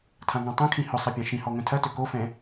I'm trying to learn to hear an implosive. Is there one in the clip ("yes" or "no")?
no